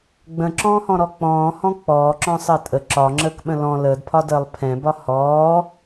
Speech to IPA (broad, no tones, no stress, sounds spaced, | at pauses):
ɡ͡b ə̃ ǁ ɔ̃ː h ɔ̃ ɾ ɔ k͡p ɔ̃ː h ɔ̃ k͡p ɔː ǁ ɔ̃ sˤ əː tʼ ə ǁ ɒ ŋ͡ǁ əː k ɓ ə̃ l ɔ̃ l əː d pʰ ɒ d əː lˠ pʰ ɛ̃ b ɒ h ɔː